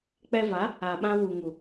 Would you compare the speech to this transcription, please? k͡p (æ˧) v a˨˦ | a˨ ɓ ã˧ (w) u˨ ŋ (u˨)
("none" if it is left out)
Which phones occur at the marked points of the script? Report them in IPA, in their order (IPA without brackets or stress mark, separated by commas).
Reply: ɛ˧, w, u˨